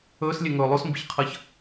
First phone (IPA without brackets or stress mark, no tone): ɵː